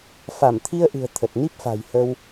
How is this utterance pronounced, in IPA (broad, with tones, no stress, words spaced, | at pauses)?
fa˧˩mt̪ʰi˧ə̯ʔɨ̤˨˩ə̯ t̪ʰə˨˩t̚ ni˦˥p̚fa̤˨˩j hə˧w